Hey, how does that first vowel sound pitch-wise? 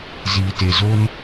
low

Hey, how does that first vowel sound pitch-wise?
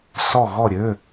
falling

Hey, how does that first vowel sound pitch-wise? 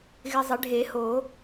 low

